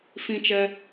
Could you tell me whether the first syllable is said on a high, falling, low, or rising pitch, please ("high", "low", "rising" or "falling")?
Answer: high